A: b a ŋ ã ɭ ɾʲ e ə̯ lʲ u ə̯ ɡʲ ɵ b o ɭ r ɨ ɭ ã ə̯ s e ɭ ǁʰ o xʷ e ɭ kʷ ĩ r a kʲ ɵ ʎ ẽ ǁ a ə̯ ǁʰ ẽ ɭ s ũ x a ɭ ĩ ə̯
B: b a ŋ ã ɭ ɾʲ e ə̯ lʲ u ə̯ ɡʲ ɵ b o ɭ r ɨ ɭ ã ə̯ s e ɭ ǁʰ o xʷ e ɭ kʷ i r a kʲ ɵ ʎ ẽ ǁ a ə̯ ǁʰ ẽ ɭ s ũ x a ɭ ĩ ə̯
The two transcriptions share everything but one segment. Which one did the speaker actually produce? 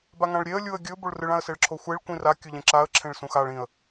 A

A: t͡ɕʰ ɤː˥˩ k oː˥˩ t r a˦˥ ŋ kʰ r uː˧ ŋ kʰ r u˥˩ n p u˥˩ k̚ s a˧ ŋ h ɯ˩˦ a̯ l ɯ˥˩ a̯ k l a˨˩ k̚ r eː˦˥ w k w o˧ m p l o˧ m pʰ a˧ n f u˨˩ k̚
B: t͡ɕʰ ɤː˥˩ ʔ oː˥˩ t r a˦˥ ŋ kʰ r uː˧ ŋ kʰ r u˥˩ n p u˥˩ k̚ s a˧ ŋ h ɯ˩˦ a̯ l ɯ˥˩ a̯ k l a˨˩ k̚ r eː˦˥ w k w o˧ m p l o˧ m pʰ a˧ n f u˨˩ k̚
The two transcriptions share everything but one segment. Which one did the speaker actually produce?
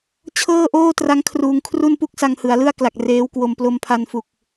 B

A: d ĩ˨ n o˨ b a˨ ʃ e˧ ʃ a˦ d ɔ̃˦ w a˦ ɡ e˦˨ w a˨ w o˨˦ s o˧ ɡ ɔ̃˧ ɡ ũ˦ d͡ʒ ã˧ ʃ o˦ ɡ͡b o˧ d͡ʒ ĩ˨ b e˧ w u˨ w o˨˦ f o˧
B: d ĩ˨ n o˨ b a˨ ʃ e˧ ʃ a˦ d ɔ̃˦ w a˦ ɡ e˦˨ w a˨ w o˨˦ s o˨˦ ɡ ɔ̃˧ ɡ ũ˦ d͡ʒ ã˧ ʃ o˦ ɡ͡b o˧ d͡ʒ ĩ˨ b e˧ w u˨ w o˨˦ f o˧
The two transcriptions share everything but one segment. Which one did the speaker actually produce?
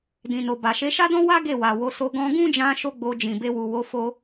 A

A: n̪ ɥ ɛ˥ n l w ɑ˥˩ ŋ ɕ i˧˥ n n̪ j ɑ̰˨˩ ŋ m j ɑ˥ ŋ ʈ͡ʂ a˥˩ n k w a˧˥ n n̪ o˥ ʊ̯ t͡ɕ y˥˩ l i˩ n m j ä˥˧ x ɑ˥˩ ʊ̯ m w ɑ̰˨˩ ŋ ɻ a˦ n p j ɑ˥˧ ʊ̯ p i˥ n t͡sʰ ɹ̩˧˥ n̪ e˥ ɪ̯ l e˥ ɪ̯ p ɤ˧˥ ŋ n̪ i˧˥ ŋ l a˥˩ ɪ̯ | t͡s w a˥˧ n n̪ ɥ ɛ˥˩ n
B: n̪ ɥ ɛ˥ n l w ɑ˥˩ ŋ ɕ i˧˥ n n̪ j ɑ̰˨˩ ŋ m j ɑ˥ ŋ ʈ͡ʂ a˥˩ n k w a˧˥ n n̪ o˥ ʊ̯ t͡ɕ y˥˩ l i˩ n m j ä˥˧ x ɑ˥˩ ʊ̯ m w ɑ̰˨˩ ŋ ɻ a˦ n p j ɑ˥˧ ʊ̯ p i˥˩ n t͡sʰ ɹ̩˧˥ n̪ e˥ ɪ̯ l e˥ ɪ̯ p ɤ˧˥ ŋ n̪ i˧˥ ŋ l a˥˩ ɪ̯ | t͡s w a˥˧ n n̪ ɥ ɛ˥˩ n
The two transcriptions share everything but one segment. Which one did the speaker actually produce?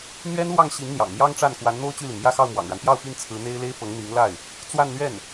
B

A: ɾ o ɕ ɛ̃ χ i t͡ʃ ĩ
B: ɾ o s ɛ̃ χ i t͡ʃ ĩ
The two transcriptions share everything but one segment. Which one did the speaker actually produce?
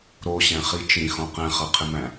A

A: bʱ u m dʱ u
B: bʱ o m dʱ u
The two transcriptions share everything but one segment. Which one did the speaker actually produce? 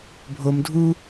B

